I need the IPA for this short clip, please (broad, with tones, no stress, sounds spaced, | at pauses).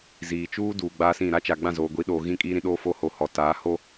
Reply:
z iː˨ t͡ʃ uː˦ d uː˨ ɡ͡b aː˦ s ĩ˦˨ ɾ a˦ t͡ʃ a˨ ɡ͡b ã˦˨ z oː˨ ɡʷ i˨˦ ɗ oː˨ ɣ ĩ˦ kʼ iː˦ ɾ ĩ˦ ɗ oː˦ f o˦ h o˨ h ɔ˨ t aː˨˦ h o˦